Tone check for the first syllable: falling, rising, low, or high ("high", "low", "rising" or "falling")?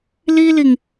high